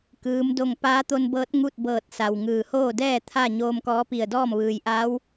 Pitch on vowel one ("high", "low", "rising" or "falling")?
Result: rising